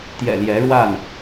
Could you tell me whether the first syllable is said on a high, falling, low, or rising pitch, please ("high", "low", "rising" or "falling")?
low